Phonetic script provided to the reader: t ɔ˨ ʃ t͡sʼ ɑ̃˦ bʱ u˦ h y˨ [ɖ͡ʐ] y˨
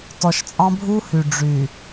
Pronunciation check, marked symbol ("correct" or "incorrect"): correct